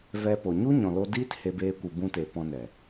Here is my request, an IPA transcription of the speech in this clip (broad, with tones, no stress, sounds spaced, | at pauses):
v ɛ˧ p o˨ ɲ u˦ ɲ ɔ̃˨ l o˧ d iː˦ t h e˧ b eː˧ kʷ ɨ˨ b ũ˧ t e˨ p ɔ̃˧ n ɛ˨